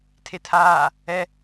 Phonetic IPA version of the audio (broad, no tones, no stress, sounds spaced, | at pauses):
tʰ e tʰ aː | ɛ